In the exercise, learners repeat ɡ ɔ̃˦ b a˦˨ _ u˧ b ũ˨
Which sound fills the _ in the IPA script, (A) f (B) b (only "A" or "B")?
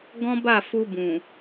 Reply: A